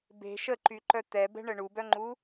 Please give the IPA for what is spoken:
be̤ ʃəǃyǃœ t̪ɛbɛ̤ɳə ɳubœŋ͡ǃu

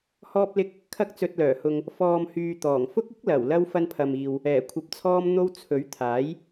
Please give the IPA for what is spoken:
hɔː˧p̚lɪ˧k̚ | kʰɐ˧k̚t͡sɵ˨t̚lœː˨˩hʊ˨ŋ | fɔː˨mhyː˨ t̪ɔː˨˩ŋfʊ˥k̚ɪ˥k̚lɐ˨˩w lɐ˧w fɐ˧npʰɐ˨miː˨w | ɛː˨˩kʷʰɐ˨p̚t͡sʰɔː˧m n̪o˧w t͡sʰɵ˨˥ɥt̪ʰaː˨˥j

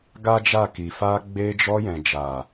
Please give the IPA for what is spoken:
ɡa˦d͡ʒa˦˨ ki˨fa˧ ɡ͡be˧d͡ʒɔ˧jɛ̃˨ d͡ʒa˨

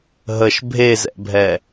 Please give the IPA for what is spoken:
ɦəʃ bʱezɛ̰bʱɛ

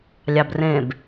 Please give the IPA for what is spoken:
lʲɑbrẽb

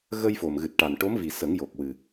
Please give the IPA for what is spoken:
ɣə˧jfo˨˩mɣɨ˨˩t̚ʈa˨˩n ʈo˧˥mvi˨˩ sə˨˩˦ŋjo˨˩k̚wɨ˨˩

